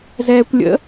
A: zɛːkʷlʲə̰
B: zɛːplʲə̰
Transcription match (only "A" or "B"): A